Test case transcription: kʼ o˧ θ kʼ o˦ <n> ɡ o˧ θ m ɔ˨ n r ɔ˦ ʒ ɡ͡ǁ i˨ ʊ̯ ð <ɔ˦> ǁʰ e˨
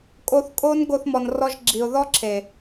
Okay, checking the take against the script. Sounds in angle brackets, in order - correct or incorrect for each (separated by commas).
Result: correct, correct